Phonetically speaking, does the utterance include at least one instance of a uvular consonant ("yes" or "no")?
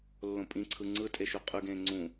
yes